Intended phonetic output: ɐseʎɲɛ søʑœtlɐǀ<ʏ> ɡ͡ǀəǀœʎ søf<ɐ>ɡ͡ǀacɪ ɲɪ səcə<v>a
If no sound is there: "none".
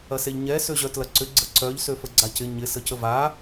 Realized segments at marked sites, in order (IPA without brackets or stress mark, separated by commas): ʏ, ə, v